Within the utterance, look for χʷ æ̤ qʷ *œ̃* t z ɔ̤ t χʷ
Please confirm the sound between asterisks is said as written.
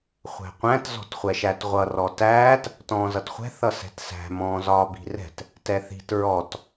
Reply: no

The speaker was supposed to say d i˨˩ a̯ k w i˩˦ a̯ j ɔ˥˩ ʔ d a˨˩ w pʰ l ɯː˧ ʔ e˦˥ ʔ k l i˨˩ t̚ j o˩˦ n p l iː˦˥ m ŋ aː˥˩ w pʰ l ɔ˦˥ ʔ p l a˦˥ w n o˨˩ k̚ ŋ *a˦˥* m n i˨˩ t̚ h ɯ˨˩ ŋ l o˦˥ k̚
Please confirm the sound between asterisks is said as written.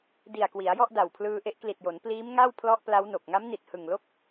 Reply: yes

